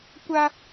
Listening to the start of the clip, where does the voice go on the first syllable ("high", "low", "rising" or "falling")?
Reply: high